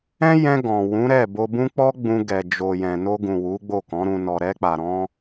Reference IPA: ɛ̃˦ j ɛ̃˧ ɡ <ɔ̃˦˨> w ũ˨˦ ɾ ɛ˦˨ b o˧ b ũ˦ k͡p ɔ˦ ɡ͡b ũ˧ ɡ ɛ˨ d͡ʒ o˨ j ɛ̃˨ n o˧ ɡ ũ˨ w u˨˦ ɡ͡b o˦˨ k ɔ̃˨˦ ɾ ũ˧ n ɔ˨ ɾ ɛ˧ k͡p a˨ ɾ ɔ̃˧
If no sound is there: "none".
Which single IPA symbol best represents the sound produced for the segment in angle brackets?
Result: ɔ̃˨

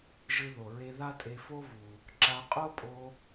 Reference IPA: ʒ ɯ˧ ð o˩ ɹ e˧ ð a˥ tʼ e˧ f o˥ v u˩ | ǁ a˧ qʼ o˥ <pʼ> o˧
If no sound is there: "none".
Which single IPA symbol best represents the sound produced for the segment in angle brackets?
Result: pʼ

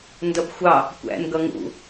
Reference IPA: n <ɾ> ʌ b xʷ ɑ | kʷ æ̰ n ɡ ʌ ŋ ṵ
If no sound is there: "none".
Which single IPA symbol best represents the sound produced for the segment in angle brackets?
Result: d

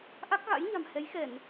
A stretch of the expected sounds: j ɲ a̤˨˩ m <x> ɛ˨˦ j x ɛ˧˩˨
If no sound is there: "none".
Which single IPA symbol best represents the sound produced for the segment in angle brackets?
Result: h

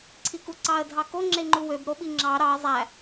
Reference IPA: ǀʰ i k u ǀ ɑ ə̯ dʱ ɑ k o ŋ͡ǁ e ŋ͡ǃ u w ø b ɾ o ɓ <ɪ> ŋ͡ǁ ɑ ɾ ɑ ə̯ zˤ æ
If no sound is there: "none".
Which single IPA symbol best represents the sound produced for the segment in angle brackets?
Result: i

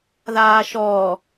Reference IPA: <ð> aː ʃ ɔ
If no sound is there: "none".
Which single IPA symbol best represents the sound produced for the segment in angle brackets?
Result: ð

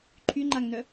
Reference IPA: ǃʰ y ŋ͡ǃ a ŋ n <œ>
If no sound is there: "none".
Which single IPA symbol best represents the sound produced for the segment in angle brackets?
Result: œ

